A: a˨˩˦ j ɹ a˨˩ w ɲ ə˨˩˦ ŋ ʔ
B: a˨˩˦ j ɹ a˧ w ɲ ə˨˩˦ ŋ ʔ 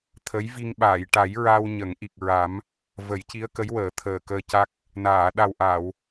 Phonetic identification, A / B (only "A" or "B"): B